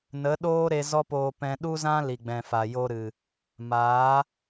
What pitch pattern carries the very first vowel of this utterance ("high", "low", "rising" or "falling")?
rising